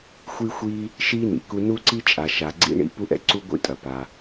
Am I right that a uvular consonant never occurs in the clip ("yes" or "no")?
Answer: yes